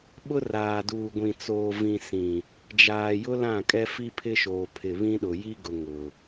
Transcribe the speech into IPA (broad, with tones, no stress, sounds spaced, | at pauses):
ɓ ʊ˦ r aː˨ d uː˨ ɡʷ ĩ˨ t͡s oː˨ v ĩ˨ s ĩ˨ | d͡ʒ aː˨ j ʊ˦ l ã˦˨ kʼ ɛ˦ f i˦ pʰ ɪ˦ ʃ oː˨ pʰ ɪ˨ β ĩ˦ ɗ ʊ˨ j i˦ ɡ ʊ˨ ŋ ʊ˨